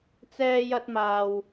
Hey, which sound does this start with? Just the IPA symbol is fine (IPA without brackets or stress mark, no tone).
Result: t͡s